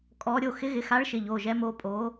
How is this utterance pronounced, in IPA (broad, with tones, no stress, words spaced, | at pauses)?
kʼɔ˨˦ɾʲo˩˧˩ xɪ˨˦ɣɪ˩˧˩xa˨˦ɭʃɪ˩˧˩ ʎo˩˧˩ʒɛ˨˦ mo˨˦ pʼo˨˦